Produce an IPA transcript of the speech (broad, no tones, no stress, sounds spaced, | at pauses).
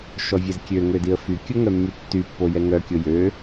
ʃ ɔ vʲ ɛ z kʲ ø ŋ ø d i ə̯ f y kʲ o ŋ œ mː y tː y pː o j ɛ ŋ œ kʲ o j ø